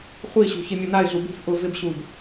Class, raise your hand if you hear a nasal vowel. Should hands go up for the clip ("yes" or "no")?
no